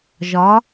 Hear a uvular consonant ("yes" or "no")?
no